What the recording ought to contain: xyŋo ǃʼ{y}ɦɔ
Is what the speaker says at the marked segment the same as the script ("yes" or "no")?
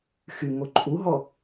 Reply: no